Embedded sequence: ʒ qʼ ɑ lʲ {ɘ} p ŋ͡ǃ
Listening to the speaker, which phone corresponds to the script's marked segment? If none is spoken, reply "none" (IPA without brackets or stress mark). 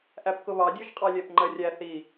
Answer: ɛ